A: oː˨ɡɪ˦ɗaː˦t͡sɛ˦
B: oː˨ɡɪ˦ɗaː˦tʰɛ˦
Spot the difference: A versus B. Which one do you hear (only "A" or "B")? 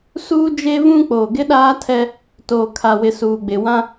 B